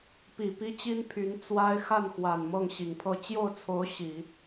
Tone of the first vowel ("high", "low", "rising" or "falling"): low